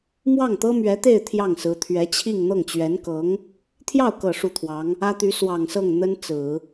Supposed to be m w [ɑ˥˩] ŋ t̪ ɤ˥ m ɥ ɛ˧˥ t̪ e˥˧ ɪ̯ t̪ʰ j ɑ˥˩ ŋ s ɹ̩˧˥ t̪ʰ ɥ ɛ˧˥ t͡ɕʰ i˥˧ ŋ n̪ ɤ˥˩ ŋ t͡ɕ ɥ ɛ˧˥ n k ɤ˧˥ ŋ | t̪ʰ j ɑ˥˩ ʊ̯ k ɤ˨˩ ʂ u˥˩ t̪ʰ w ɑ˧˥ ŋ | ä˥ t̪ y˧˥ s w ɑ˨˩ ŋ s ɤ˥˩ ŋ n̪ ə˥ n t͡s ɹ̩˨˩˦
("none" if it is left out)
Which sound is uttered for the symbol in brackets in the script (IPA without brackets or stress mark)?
ɑ˥˩